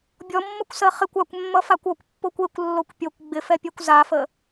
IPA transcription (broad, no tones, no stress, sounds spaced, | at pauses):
bʲ ɔ mː ʌ kʷ s ɜ χ ɪ kʷ a kʷ mː ʌ f a kʷ ɔ kʷ pː o kʷ e kʷ lː o kʷ pʲ o kʷ ɡ͡b ɪ f ɛ pʲ ɛ kʷ z a f ə